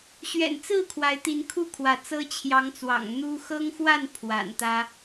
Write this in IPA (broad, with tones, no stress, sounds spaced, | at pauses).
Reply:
ɕ ɥ ɛ̰˨˩ n t͡s ɹ̩˥˨ kʰ w a˨˦ ɪ̯ t̪ i˨˦ n kʰ u˥˨ kʰ w ä˨˦ t͡s ɤ˦ t͡ɕʰ j ɑ˨˦ ŋ t͡s w ɑ̰˨˩ ŋ n̪ u˦ x ɤ˦ ŋ x w a˥˨ n pʰ w a̰˨˩ n t̪ ä˦